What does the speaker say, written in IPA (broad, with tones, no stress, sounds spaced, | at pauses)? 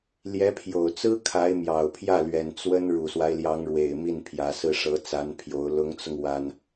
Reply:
l j ɛ˧˥ pʰ j o˨˩ ʊ̯ t͡s ɹ̩˥ kʰ a˧˥ ɪ̯ m j ɑ˨˩ ʊ̯ pʰ j ä˥˩ l ɥ ɛ˨˩ n t͡s w ə˥ n ɻ u˨˩ s w a˦ ɪ̯ l j ɑ˧˥ ŋ ɻ w e˨˩ ɪ̯ m i˥˩ n pʰ j ä˧˥ s ɹ̩˥˩ ʂ ɤ˧˥ t͡s a˧˥ n pʰ j o˧˥ ʊ̯ l ʊ˧˥ ŋ t͡s ʊ˧ ŋ w a˥ n